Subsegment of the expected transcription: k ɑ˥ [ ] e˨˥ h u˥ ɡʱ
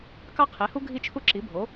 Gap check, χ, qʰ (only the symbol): qʰ